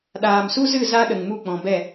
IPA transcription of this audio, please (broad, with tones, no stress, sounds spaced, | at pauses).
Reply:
ɗ aː˨ m s u˦ z ɨ˦˨ z a˦ ɗ ə˨ ŋ m u˦˨ k͡p ɔ̃˨ b ɛ˦˨